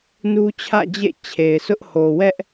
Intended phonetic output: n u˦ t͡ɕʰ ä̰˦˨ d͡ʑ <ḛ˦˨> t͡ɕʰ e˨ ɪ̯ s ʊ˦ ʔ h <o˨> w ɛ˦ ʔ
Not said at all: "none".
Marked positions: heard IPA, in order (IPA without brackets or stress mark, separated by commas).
ḛ˦˨, o˨